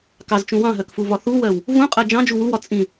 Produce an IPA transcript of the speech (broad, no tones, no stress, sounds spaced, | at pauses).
k ɑ z t͡ʃ ũ w ɑ̃ ɦ ɜ k f u v ɒ θ u w ɜ w | v ũ qʼ ɜ d͡ʒ ɑ̃ d͡ʒ u w u w ɒ t͡sʼ ĩ